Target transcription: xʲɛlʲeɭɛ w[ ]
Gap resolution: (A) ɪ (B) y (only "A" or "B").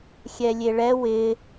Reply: A